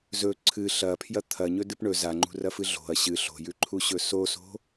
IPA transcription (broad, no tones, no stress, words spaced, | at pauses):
zɵ ǀʰɨ ɬɐpʰjɐ t̪ʰɐɲɵdɨp ɳɵ zaŋ͡ǃṳrɐfɨ ɮo̤ɐ̯ ɕɨ ɬo̤jʉǃʰuɕɵ soso̤